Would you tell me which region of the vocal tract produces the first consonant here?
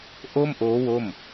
throat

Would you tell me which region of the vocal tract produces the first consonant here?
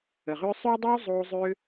uvula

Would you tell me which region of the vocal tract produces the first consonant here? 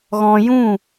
velum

